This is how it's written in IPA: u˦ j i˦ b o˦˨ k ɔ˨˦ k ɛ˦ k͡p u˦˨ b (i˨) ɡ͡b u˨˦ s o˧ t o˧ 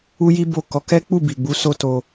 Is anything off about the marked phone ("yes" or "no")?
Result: no